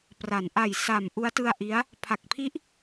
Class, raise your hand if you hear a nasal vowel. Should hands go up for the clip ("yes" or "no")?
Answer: no